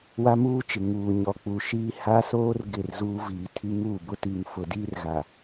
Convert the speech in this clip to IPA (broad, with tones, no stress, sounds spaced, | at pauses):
w a˦ m uː˦ t͡ʃ ɪ˨ ŋ uː˨ ɲ ɔ˨ k͡p uː˨ ʃ iː˦ h aː˦ s oː˦ r ɡ ɪ˦˨ r z uː˦ v iː˨ tʰ i˦ ŋ uː˦˨ b ʊ˦ t i˨ ŋ f ʊ˨ d iː˦ r ɣ a˨